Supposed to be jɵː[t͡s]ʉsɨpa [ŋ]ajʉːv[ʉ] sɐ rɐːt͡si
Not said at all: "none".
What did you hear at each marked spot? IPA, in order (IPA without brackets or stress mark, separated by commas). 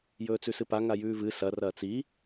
t͡s, ŋ, ɨ